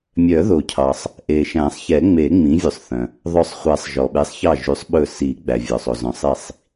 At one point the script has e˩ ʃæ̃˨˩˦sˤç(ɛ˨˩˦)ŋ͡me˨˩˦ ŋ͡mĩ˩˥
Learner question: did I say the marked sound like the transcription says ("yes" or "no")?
yes